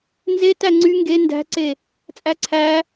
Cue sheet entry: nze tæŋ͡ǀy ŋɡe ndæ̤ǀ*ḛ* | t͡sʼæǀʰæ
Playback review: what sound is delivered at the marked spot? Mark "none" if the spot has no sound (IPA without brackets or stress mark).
e